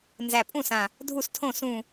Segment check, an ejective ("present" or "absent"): present